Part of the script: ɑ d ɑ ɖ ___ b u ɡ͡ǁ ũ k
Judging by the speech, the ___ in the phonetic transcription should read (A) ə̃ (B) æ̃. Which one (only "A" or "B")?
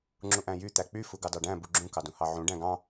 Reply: B